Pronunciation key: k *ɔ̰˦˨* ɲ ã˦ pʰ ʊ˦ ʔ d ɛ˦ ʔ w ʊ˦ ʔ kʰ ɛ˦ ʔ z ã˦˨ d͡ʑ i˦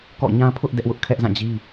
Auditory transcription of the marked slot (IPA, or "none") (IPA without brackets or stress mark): ɔ̰˦˨